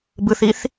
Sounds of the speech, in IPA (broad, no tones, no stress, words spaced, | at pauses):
bɯθiθ